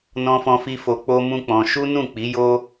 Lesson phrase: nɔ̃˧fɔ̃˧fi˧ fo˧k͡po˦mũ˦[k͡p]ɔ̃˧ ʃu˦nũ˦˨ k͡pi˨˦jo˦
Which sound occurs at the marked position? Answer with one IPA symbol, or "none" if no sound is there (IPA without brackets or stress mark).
k͡p